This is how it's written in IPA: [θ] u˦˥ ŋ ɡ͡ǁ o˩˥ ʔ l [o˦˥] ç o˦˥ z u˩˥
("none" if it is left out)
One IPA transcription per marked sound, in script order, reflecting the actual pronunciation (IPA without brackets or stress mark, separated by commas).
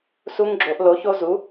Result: s, o˩˥